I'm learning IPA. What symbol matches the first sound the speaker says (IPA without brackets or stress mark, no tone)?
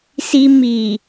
s